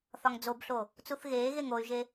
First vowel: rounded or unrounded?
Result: rounded